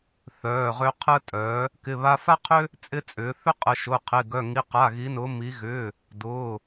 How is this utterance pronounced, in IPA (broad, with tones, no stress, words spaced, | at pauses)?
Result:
θœː˩˧˩ʁø˧ qʰəː˧tʼœ˩˧ | kɪ˩˧˩βa˧fa˥qʰʏ˥ | t͡sʼɪ˧t͡sʼʏː˩˧ θʏ˥qʼə˩˧ ʃʊː˩˧˩qʰɪ˩˧˩ɡœ˩˧˩ŋi˩˧˩ qa˩˧˩ɣi˩˧nʊː˩˧ mi˩˧ɣʏː˩˧˩ | dʊː˩˧˩